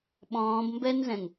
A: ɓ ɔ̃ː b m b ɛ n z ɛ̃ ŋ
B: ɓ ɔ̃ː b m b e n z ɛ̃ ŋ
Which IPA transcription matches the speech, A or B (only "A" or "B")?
A